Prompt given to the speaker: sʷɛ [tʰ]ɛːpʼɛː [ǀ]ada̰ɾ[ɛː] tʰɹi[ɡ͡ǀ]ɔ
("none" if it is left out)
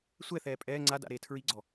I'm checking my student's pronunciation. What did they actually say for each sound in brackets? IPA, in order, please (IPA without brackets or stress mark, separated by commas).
θ, ŋ͡ǀ, eː, ɡ͡ǀ